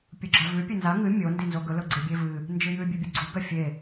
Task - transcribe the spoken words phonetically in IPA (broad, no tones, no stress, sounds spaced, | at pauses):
pʲ u ɡ͡ǁ a v ʉ pʲ e n z a ŋ ɨ mʲ o n d i n z o ɡ ɵ l ɵ ɡ͡ǀ e bʲ e v ɨ | n d͡ʒ ɨ j ʉ bʲ ʉ bʲ ɨ ɡ͡ǀ u ɡ ɐ fʲ e